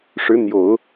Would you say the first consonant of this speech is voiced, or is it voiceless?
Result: voiceless